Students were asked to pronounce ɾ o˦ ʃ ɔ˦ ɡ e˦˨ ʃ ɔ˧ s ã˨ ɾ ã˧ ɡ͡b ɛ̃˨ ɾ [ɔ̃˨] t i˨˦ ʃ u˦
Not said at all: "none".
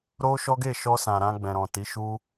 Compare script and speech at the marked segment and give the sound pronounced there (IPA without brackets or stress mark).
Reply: ɔ̃˨